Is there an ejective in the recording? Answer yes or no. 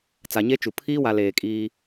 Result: yes